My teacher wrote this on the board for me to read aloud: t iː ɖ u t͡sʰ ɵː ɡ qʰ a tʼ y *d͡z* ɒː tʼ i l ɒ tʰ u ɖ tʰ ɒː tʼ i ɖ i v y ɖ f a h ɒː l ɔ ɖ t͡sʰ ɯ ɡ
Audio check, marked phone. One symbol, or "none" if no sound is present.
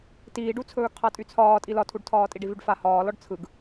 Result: t͡sʰ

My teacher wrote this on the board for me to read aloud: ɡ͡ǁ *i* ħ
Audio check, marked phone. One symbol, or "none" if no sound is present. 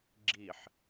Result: i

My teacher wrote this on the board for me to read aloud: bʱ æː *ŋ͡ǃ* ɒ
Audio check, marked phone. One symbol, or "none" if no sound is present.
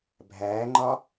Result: ŋ͡ǃ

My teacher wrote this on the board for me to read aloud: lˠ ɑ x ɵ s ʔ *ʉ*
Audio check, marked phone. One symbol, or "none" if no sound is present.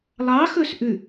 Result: ʉ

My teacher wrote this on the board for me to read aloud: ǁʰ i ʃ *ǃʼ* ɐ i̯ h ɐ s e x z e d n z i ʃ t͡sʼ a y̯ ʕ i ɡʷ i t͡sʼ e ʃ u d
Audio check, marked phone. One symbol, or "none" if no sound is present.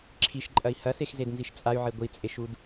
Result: ǃʼ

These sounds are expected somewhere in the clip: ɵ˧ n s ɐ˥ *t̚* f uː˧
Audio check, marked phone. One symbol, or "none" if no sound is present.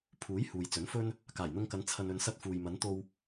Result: t̚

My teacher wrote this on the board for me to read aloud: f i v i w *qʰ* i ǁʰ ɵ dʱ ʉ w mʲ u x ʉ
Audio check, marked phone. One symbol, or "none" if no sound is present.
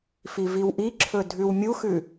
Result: ʔ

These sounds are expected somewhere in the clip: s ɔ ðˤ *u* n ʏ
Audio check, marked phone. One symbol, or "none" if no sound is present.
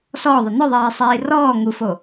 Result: ʏ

